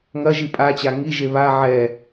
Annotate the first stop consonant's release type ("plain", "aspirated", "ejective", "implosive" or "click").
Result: ejective